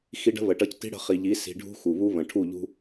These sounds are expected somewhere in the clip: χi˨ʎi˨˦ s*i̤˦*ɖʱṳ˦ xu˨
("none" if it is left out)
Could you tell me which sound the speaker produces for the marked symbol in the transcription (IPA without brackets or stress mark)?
i̤˧